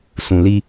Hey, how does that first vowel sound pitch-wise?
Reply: low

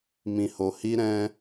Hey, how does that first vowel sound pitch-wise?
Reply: low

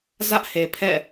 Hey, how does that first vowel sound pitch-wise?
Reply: high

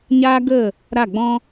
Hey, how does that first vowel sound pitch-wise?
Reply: high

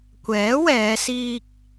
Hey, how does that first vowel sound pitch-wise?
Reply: rising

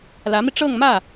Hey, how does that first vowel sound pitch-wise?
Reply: rising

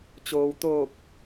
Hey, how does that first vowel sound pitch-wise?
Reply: low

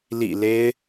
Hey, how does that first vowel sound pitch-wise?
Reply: low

